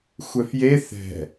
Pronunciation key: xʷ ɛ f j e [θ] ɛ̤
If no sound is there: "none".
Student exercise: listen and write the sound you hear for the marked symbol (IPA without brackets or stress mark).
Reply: θ